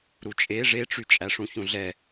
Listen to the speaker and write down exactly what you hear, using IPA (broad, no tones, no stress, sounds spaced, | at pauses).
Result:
ɾ u t͡ʃʼ e ʐ e ʈ͡ʂ y t͡ʃʼ æ ʂ ũ ç ũ ɮ ɛ